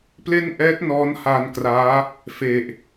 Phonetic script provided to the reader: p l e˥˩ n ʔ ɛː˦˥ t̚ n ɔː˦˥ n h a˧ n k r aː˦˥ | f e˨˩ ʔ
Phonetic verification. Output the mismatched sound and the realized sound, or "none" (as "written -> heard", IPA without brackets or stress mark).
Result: none